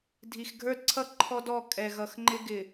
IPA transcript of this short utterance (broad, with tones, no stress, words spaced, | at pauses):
dʱi˨xɡʱə˞˦dǀʰʌ˦ ǃʰɔ˦dɔ˦˨ kʼɛ˨ɣʌ˨x ŋ͡ǃɪ˦ɡɪ˨